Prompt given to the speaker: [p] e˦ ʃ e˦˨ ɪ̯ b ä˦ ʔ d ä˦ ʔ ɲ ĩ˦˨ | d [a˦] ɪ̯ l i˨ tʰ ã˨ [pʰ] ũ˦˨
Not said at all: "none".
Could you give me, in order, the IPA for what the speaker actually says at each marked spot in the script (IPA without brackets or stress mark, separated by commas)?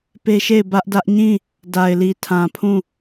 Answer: p, a˨, pʰ